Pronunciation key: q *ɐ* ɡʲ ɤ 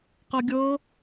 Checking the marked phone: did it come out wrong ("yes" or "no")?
no